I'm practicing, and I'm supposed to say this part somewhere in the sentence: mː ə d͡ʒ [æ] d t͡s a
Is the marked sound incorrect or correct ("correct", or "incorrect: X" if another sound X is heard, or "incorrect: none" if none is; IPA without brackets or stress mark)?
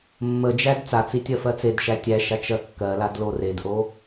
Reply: correct